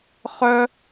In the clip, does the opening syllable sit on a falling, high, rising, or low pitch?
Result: high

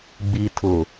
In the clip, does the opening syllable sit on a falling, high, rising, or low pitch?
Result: low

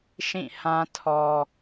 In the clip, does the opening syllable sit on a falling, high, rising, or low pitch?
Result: falling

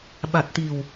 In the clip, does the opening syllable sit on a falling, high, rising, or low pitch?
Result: low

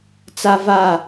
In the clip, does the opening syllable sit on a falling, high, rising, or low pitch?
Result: high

